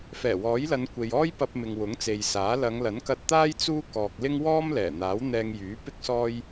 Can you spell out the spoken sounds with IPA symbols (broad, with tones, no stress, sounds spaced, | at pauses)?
f ɛː˨˩ w ɔː˨˥ j l ɐ˨˧ n kʷ e˨ j ɔː˥ j p ɐ˧ p̚ m ɪ˨ ŋ w ʊ˨˥ ŋ t͡s e˨ j s aː˨˥ l ɐ˨˧ ŋ l ɐ˨˥ n k ɐ˧ t̚ t̪ aː˥ j t͡s uː˥ k ɔː˨ k̚ l ɪ˥ ŋ w ɔː˥ m l ɛː˨˩ n̪ aː˨˥ w n̪ ɛː˧ ŋ j yː˨˥ p ɪ˥ k̚ s ɔː˥ j